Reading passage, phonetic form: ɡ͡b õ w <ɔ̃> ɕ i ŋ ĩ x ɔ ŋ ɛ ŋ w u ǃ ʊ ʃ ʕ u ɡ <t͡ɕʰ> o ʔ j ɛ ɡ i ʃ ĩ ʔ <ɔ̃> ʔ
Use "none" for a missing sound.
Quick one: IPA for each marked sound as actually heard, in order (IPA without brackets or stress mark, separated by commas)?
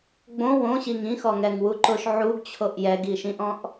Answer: õ, t͡ɕʰ, ɔ̃